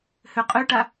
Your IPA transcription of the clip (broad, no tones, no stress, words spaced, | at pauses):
høqʼøʈa